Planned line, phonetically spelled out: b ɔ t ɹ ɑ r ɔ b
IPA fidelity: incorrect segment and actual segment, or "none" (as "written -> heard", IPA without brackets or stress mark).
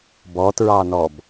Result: r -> n